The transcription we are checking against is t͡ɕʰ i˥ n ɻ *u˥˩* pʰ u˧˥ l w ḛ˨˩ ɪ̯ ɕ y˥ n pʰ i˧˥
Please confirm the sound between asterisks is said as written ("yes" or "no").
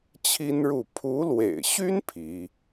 yes